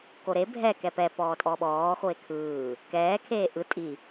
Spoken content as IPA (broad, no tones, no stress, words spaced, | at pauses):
koɾe bʱɛ kɛpɛ pɔːtʼɔɓɔː xoe̯kʰɯː | kɛː kʰeːʔɯ tʼi